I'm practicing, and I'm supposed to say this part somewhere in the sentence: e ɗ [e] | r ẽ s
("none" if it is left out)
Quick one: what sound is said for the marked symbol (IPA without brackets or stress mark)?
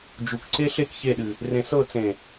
ɨ